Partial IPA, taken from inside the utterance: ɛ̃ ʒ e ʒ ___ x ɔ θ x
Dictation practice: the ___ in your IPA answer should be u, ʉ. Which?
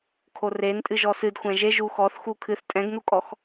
u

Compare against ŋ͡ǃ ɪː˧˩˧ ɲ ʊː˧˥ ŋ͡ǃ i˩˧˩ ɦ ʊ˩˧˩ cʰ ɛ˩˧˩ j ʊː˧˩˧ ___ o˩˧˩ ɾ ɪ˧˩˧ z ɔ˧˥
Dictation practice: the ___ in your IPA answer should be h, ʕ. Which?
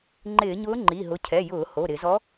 h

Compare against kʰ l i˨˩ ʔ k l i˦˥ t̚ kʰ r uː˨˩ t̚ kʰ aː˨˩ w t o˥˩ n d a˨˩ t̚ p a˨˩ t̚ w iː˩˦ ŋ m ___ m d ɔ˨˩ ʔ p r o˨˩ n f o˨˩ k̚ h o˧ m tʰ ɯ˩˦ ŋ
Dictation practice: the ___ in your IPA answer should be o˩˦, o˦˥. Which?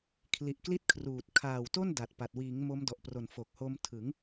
o˦˥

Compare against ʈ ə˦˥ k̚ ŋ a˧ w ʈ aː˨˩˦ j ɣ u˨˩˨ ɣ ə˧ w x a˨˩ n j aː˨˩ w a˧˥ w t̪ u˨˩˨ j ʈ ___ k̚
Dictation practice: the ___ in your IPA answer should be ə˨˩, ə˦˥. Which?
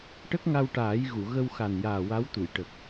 ə˨˩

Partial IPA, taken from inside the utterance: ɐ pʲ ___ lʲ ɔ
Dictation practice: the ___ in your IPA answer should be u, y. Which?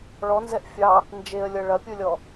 u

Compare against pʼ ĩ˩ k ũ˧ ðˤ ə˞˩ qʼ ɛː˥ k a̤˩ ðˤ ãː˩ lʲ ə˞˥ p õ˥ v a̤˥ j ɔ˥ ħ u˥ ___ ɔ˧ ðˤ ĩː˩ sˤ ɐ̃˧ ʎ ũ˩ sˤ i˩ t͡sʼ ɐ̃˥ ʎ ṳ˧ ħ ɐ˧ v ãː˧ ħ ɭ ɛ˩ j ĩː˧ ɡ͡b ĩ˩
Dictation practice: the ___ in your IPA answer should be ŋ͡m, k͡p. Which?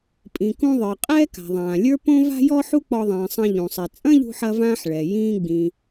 k͡p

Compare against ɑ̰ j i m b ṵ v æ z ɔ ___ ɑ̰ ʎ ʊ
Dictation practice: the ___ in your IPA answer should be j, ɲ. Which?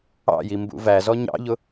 ɲ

